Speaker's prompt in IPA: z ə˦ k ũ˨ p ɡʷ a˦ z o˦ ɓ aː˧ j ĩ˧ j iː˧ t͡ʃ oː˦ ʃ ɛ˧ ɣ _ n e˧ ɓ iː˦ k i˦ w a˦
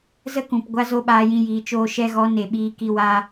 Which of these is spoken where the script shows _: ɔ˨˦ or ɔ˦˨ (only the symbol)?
ɔ˨˦